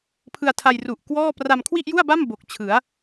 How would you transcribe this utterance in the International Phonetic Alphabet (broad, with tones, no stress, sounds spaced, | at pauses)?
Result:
pʰ ɯ˧ a̯ tʰ a˧ j r u˨˩ ʔ k w ɔː˥˩ p r a˧ m kʰ w i˥˩ ʔ j u˥˩ a̯ b a˥˩ m b o˨˩ k̚ t͡ɕʰ ɯ˩˦ a̯